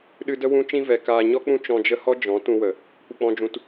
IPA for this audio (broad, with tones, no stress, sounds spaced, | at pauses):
ɗ ɨ˧ d ə˦ w ũ˦ t͡ʃ ĩ˦ v ɛ˨ k aː˨ ɲ ɔ˦ k͡p ũ˦ t͡ʃ ɔ̃˧ d͡ʒ ə˦ h ɔ˦ d͡ʒ ɔ̃˨˦ t ũ˧ w ə˨ | kʷ ə˨ k͡p ɔ̃˨ d͡ʒ ũ˨ t